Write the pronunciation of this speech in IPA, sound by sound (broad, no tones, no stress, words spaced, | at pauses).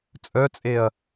t͡sʼœt͡sʼeɐ̯